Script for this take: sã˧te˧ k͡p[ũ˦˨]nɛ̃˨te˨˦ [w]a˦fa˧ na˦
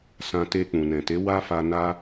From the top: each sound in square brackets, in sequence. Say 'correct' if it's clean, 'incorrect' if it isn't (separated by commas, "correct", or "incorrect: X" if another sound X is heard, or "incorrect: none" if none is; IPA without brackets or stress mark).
incorrect: ũ˨, correct